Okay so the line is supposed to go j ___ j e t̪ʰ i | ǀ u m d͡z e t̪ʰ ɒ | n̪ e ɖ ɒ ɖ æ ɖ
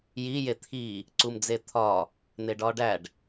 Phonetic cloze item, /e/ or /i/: i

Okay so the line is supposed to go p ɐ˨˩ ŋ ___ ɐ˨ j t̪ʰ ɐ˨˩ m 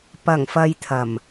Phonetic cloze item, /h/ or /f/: f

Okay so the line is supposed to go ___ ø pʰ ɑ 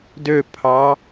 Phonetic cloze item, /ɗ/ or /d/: d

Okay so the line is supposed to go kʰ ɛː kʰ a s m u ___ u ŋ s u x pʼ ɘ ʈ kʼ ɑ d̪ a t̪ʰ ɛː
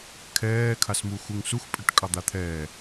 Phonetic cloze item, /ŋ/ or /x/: x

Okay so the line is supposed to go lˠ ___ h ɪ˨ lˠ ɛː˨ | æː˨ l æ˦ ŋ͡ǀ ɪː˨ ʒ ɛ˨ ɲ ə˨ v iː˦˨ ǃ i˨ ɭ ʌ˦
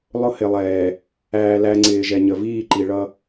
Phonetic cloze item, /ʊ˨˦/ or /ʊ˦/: ʊ˦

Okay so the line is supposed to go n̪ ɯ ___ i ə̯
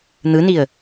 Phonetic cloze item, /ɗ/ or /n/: n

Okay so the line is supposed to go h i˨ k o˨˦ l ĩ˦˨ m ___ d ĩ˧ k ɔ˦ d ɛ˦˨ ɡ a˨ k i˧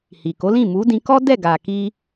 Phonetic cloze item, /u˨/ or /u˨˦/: u˨˦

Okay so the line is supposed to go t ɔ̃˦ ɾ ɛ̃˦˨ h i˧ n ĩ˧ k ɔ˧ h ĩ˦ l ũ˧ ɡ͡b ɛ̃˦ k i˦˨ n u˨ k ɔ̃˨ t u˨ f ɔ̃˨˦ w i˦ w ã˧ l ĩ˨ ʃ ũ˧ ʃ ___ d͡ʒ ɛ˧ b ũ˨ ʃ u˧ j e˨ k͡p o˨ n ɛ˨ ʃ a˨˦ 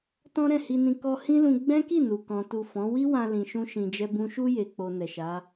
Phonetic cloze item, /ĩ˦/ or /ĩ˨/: ĩ˨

